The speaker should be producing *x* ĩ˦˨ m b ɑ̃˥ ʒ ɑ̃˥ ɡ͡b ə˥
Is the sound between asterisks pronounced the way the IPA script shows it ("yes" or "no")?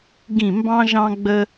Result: no